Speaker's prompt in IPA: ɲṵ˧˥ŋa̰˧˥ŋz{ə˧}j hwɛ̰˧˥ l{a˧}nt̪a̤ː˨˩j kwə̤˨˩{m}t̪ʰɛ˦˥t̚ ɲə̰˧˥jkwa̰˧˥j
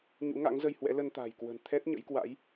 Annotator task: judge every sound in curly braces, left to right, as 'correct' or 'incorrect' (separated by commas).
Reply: correct, incorrect, incorrect